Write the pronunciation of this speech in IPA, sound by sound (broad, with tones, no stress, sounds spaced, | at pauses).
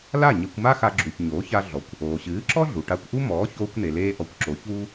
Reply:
l a˥˩ ɲ e˧ kʷ m a˥ x a˧ ɡ͡ǁ u˩ ç ɲ oː˩˥ ç a˧ ɮ ɔ˩ kʷ | oː˩ ɕ ɨː˩˥ ǁ ɔ˥ ɮ u˩ ʈ a˧ kʷ ʔ u˥ m ɔː˩˥ ç oː˧ kʷ n e˩ l eː˧ ʔ ɔ˩˥ kʷ ǁ o˩˥ ç uː˥